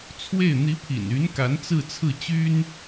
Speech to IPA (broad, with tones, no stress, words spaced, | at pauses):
t͡sʰwe˥˩ɪ̯ n̪i˧˥pʰḭ˨˩ny˧˥nka˧˥n t͡sɹ̩˥˧t͡sʰɹ̩˥˩t͡ɕy˥n